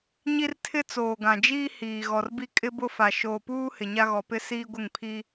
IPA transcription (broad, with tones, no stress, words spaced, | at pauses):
ɲi˦rtʰɪ˦ t͡soː˨ɡã˨ d͡ʒiː˦ hiː˨ ɣɔ˨rbi˦ kʼɪ˦bʊ˦fa˨ ʃoː˨puː˦ hɪ˨ɲa˦ɣɔ˨pɪ˦ siː˦ɡʷɪ˦˨ŋpʰi˦